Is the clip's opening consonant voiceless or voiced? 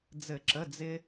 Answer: voiced